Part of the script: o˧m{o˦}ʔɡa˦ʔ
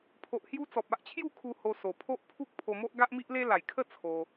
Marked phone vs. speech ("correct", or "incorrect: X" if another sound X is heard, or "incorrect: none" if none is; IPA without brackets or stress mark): correct